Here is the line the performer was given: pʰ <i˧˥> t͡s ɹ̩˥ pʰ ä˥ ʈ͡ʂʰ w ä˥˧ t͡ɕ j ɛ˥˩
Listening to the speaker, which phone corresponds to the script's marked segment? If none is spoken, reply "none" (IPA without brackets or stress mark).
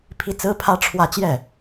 i˧˥